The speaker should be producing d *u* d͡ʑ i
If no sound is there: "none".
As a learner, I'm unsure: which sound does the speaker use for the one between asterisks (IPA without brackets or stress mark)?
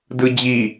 ɯ